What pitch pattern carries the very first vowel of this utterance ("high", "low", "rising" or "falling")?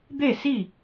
falling